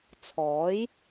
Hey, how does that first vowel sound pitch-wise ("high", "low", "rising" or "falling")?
rising